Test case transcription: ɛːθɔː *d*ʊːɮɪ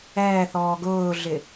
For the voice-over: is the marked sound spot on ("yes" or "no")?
no